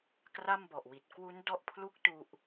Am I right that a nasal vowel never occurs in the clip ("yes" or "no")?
yes